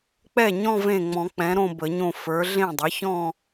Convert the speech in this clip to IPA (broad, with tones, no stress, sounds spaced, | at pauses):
k͡p ɛ˥˩ ɲ ɔ̃˥˧ v ẽ˥˩ ŋ͡m ɔ̃˨˩˦ k͡p ɛ̃˩˥ ɾ õ˥˧ b ə˨˩˦ ɲ õ˥˩ f ə˞˩˥ ɮ ẽ˥˩ dˤ ə˩˥ ç ɔ̃˥˧